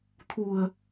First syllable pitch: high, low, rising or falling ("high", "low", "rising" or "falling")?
low